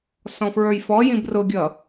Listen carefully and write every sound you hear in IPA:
s ɔ̃ f ɹ ə˞ j f ɔ j ĩ b r ʊ ɡʲ ʌ

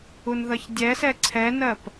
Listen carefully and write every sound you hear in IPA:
u n ð ʌ ç dʲ ɛ s ɛ ǀʰ ɛ n ɜ p

